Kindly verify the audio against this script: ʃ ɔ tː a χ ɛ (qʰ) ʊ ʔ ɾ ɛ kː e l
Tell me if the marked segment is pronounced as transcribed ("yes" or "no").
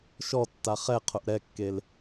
yes